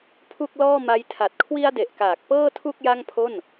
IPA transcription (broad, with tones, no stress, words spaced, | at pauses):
pʰu˥˩k̚lɔː˥˩ma˦˥j tʰa˨˩t̚kʰwi˧a̯de˨˩ʔkaː˨˩k̚ pɤː˥˩tʰu˥˩k̚ ja˥˩ŋpʰo˥˩n